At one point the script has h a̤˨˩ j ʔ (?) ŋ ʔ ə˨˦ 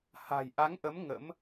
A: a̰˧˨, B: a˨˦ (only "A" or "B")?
B